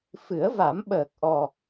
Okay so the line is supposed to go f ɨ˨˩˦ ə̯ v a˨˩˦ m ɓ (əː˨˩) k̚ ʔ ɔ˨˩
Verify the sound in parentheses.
correct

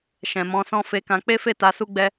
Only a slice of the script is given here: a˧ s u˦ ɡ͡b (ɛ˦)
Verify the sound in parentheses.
correct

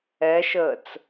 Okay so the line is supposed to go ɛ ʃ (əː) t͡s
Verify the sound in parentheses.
correct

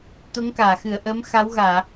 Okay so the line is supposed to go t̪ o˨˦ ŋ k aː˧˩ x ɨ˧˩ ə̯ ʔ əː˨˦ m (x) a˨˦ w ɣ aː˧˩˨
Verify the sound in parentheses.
correct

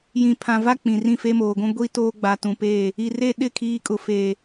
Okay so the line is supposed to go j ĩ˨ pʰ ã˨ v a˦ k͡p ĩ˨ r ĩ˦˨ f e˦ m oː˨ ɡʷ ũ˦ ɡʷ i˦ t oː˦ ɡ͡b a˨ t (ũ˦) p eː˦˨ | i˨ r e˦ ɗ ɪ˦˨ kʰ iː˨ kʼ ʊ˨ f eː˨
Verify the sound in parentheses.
incorrect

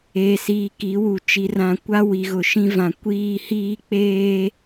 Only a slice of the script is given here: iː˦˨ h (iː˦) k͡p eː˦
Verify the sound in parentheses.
correct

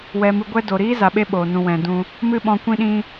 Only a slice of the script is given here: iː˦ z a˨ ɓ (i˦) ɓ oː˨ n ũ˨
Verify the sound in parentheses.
incorrect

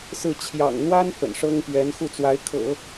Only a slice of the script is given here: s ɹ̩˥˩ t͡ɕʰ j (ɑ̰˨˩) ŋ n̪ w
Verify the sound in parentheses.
correct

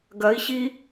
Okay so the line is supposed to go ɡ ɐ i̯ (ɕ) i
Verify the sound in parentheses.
correct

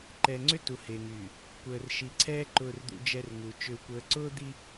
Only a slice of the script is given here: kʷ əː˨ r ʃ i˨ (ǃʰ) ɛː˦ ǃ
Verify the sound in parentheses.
incorrect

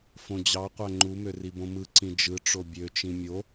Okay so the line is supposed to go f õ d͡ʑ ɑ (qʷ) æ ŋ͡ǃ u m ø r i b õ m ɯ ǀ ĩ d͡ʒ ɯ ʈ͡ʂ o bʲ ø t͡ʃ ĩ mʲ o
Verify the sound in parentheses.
correct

